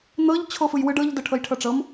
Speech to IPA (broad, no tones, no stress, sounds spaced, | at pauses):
n̪ ɤ ʎ t͡ɕʰ o f ɯ j w ɯ ɖ ɤ ʎ d ɤ ʈʰ ɤ j ʈʰ ɤ ʈ͡ʂ ɤ m